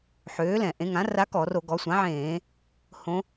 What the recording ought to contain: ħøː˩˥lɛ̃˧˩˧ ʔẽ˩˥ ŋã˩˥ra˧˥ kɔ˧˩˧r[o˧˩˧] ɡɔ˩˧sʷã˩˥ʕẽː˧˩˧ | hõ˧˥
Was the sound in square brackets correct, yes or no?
yes